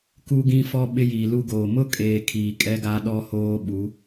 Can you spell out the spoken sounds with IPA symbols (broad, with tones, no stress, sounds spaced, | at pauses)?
k u˦ ɡ ĩ˦ f ɔ˦ ɓ ɪ˦ j iː˨ l u˦ ɡ oː˨ m ʊ˦ kʼ eː˨ kʰ iː˨ kʼ ɛ˦ ɡ a˦ ɗ ɔ˦ h oː˦ ɓ u˨˦